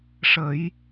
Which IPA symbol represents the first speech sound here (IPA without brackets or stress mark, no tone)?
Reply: ʂ